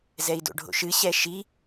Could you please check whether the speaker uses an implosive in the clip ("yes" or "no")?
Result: no